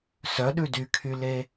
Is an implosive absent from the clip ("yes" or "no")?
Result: no